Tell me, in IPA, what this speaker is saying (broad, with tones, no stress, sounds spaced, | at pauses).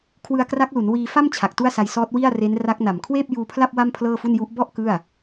kʰ w ɯ˧ a̯ k r a˦˥ k̚ l u˩˦ n w iː˧ f a˥˩ m t͡ɕʰ a˨˩ k̚ t u˥˩ a̯ s a˧ j s ɔː˦˥ t̚ w i˥˩ a̯ r e˦˥ n r a˦˥ k̚ n a˨˩ m kʰ w eː˥˩ p̚ j uː˧ pʰ l a˥˩ p̚ w a˥˩ m pʰ l ɤː˥˩ f u˥˩ n j u˦˥ ʔ b ɔ˥˩ ʔ k ɯ˥˩ a̯